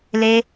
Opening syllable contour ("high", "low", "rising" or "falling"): high